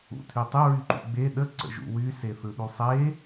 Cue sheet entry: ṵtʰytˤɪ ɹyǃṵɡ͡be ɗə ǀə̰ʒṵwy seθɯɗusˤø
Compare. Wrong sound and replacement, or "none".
ø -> e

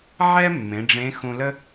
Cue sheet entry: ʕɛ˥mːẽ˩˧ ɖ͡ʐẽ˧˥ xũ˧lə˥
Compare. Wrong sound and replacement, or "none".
none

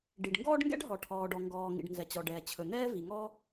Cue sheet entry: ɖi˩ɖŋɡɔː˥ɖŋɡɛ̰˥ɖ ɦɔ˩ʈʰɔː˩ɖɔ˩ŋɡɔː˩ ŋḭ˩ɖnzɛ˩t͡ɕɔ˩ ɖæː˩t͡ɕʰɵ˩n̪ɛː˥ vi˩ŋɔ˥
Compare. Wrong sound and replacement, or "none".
æː˩ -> ɛː˩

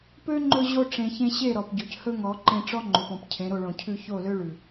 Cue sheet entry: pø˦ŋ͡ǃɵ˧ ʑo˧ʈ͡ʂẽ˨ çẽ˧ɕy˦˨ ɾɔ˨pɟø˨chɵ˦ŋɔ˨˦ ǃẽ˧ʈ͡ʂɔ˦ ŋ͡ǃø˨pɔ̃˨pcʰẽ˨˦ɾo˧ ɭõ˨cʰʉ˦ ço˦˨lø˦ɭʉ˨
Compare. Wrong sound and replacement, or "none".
y˦˨ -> e˦˨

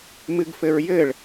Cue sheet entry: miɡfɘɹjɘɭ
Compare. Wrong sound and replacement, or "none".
i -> ɨ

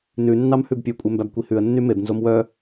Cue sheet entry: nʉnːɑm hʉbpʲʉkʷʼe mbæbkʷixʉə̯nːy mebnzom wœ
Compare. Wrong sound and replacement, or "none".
x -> h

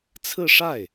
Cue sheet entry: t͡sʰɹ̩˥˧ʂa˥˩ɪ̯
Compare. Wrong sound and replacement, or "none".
none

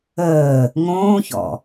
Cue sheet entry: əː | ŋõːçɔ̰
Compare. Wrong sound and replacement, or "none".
none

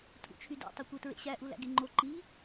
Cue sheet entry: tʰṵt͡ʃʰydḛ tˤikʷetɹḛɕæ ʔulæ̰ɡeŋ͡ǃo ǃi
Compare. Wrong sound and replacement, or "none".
none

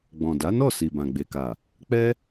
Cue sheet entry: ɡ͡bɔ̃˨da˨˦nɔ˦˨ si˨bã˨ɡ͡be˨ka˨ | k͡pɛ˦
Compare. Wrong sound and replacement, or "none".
none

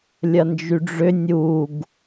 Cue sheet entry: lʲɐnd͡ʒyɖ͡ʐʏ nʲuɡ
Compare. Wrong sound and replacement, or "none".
none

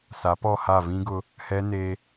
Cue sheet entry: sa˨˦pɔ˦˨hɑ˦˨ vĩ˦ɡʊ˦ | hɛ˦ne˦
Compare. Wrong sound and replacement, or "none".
ɑ˦˨ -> a˦˨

